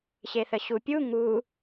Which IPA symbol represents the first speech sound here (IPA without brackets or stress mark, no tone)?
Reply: ɕ